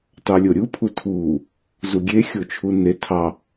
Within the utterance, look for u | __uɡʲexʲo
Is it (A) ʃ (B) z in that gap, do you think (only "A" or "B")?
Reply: B